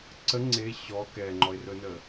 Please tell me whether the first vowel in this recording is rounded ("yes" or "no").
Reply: no